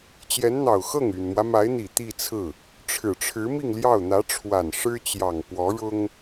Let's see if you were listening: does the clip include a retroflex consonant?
yes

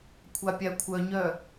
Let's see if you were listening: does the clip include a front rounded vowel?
yes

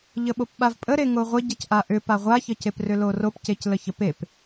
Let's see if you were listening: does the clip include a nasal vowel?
no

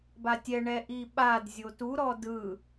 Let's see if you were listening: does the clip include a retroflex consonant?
yes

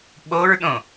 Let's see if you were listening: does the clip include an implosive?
yes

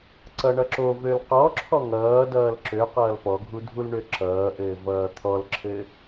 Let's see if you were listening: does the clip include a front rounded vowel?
yes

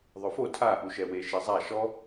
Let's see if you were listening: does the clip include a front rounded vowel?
no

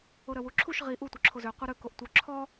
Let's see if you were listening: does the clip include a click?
yes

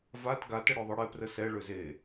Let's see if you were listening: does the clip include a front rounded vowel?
yes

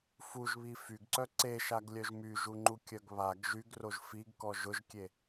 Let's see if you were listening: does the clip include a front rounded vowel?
yes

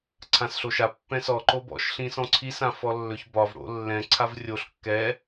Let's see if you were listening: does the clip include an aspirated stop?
yes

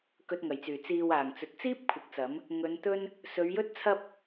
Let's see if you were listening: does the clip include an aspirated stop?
yes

